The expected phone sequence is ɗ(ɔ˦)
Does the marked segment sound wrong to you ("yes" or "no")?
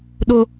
yes